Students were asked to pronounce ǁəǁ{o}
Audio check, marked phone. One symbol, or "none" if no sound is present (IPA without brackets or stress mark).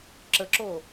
o